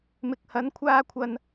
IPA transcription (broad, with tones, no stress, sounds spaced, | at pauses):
m ɪ˨ k̚ h ɐ˨˥ n kʷʰ aː˧ kʷʰ ɐ˨ n